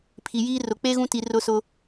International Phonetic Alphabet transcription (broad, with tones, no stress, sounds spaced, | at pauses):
pʰ i˨ j iː˦ r ʊ˨ k͡p e˦ ɣ ũ˦ t i˨ r ʊ˦ s ʊ˦